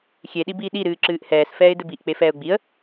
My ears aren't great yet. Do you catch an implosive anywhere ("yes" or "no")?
yes